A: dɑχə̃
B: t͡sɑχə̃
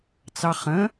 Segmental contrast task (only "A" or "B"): B